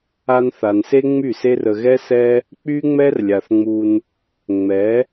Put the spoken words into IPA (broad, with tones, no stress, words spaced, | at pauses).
a˧nθa˨nse˦ ŋ͡my˦˨se˦rə˧ ɣɛ˦sɛ˦ | k͡py˦ŋ͡mɛ˦rlʲa˨θŋ͡mu˧n | ŋ͡mɛ˨˦